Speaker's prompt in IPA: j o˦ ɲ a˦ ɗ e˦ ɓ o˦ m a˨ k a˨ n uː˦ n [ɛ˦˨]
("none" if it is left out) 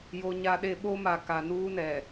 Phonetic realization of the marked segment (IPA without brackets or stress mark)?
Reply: ɛ˨